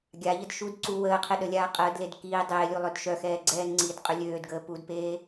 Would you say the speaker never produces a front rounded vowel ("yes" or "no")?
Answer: no